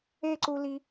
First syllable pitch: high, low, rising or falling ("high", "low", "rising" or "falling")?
falling